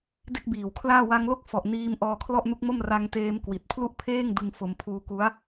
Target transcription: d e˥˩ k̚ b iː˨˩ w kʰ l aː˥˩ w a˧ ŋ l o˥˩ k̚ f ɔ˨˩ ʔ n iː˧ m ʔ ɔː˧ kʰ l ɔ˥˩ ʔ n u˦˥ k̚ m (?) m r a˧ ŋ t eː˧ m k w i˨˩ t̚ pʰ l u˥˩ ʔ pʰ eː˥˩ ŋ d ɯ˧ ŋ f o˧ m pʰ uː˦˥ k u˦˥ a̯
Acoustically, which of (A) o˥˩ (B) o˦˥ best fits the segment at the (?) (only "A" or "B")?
A